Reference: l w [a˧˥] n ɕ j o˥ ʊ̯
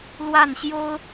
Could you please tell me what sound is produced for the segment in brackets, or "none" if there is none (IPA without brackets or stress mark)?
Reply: a˥˩